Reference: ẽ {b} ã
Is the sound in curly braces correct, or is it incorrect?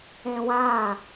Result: incorrect: w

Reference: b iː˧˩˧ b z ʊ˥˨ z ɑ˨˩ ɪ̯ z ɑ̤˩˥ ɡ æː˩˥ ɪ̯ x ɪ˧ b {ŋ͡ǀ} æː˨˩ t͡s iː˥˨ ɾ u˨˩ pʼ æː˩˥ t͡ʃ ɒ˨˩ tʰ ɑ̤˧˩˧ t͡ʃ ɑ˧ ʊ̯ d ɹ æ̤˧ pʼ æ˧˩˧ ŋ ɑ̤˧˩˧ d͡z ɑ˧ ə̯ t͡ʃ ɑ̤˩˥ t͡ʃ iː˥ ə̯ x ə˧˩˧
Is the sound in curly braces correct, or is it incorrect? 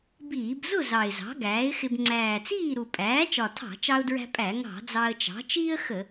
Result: correct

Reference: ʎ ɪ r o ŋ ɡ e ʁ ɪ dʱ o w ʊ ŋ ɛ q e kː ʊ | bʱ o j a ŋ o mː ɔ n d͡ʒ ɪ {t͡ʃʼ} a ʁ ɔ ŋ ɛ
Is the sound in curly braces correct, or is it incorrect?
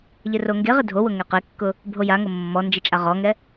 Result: correct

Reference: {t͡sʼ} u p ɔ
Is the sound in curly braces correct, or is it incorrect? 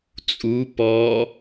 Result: correct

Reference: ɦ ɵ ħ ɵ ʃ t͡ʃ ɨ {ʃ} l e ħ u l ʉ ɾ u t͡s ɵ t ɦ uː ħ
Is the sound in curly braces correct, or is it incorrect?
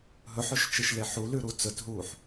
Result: correct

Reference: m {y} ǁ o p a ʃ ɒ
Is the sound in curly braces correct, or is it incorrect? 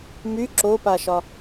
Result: correct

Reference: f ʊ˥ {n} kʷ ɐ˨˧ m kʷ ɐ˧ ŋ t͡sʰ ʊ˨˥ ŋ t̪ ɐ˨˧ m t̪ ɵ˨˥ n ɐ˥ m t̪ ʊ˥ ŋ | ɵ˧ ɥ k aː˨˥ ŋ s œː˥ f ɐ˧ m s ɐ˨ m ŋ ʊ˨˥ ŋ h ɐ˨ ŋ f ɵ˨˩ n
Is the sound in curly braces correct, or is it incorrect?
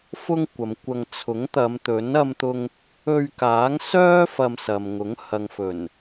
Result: incorrect: ŋ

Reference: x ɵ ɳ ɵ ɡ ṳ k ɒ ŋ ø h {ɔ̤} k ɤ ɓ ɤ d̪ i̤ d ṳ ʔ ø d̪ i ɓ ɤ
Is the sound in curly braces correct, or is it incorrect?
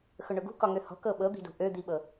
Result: correct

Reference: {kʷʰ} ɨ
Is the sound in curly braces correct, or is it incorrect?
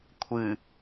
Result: correct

